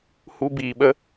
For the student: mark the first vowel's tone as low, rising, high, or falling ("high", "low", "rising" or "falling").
high